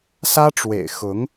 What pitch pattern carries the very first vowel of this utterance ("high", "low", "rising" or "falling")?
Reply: high